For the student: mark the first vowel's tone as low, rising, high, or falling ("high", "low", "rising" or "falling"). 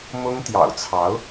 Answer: high